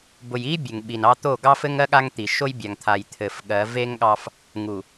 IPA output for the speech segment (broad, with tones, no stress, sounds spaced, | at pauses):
b ʊ˨ j i˦ bʲ ɘ˨ ŋ ɓ i˨ n ɑ˦ t̪ o˦˨ ɡ ɑ˦ f ɘ˦ ŋ ɜ˦ ɠ a˦ ŋ t̪ i˨ ʃ o˦ j bʲ a˨ ŋ t̪ʰ a˨ j t̪ʰ ɘ˨ f ɠ ɜ˨˦ v e˦ ŋ ɠ ɑ˦ f | ŋ u˨